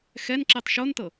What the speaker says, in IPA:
x ɛ n ǁ i tˤ ʃ o n t ɤ

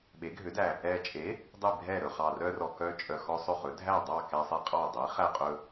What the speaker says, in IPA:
ɓ e˩˥ ɡʱ ø˩˥ d æ˨˩ | ɛ˨˩ t͡ʃʼ e˩˥ | dˤ i˥˩ bʱ ɛ˥˩ ɾ ɵ˨˩ χ ɑ˨˩ r œ˦ r ɔ˨˩ k œ˦ t͡ʃʼ œ˨˩ x ɔ˦ sˤ ɵ˥˩ χ ɵ˩˥ dʱ æ˥˩ dˤ ɑ˥˩ k ɛ˦ sˤ e˦ qʼ ɑ˥˩ dˤ i˩˥ χ æ˥˩ qʼ ɵ˦

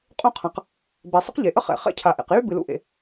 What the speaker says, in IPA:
qʼ ũ˥ qʰ ã˩ q | b ɛ˩ sˤ ə̰˥ q ʎ e˩ ʔ ə˥ χ ɛ̰˩ χ ɛ̰˥ cʰ a˩ ʔ ḛ˩ q j y˥ b ɨ˩ l ṵ˥ ʔ ḛ˩

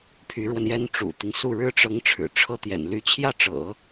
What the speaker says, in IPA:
pʰ y˧˥ ɻ w ə˧ n j ɛ˥ n ʈ͡ʂ ṵ˨˩ t̪ i˦ ŋ s u˥˩ ɻ ɻ̩˥ ʈ͡ʂ ɤ˧˥ ŋ ʈ͡ʂʰ ɻ̩˨˩ ʈ͡ʂʰ ɤ˥ t̪ j ɛ̰˨˩ n l y˧˥ t͡ɕʰ j ä˥˩ ʈ͡ʂ ɤ̰˨˩˦

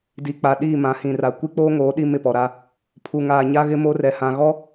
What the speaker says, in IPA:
d i˨ k͡p a˨ ɗ iː˦˨ m ã˨˦ h ĩ˨ r a˨ kʷ i˦ k͡p oː˦ ŋ oː˨˦ ɗ i˦ m ɪ˦˨ p ɔ˨ ɾ a˦ | pʰ u˨ ŋ aː˨ ɲ a˦ ɣ ɪ˦ m o˦ r ɛ˨ h ã˨ ɣ ɔ˦

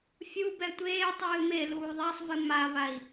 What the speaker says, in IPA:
fʲ uː b ɛ tʷ eː tˤ ɨː m e l uː ðˤ a sˤ v ɨ m a v a i̯

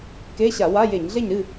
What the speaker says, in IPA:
k e˧˥˧ ɕ a˧˩˧ w a˧˥˧ j e˧˩˧ ɲ ɮ e˥˨ ɲ ɾ ɨ˥˨

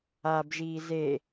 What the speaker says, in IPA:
a b ʒ iː z e

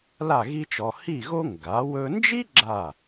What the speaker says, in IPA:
l a˥˧ ɣ i˥ t͡ʃ ɔ˧ h i˥˧ ɣ o˥ ŋ ɡ a˩˧ w ɵ˧ n d͡ʒ i˥ ɡ͡ǁ a˧˩

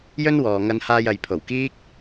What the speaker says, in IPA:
j ɵ˥ n w ɔː˨ ŋ ɐ˧ n h aː˧ j ɐ˨ j pʰ o˨˩ w k iː˥ k̚

